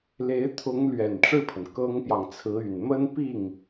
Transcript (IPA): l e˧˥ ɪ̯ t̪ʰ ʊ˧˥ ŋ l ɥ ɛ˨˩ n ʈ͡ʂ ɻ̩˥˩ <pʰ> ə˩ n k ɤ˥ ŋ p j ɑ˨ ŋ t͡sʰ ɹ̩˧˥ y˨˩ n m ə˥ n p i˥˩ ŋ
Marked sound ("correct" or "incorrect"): correct